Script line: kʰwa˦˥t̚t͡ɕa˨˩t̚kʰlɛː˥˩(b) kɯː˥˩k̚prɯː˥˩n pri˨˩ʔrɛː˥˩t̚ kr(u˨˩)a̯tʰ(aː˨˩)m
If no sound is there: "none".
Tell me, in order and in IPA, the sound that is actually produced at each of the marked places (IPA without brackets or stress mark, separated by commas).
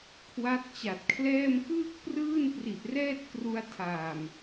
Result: m, u˧, aː˨˩